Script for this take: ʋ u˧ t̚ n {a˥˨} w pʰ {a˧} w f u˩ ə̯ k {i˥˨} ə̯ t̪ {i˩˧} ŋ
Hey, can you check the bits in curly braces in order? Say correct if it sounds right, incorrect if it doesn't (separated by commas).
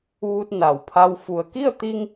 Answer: incorrect, correct, correct, incorrect